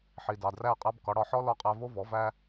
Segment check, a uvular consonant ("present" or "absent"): present